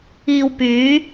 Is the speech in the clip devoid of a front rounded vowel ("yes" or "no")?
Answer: no